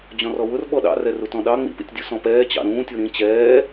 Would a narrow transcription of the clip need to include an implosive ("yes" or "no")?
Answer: yes